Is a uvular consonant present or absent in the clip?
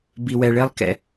absent